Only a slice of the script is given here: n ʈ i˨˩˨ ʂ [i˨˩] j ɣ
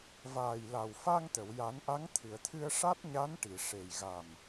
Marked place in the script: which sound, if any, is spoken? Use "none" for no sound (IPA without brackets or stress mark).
e˨˩